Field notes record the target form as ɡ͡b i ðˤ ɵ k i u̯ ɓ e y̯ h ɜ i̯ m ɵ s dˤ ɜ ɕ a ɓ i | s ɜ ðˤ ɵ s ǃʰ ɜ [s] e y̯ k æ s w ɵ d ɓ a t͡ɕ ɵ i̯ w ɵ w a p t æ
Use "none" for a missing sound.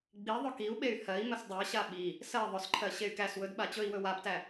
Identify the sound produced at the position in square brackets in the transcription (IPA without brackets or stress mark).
ɕ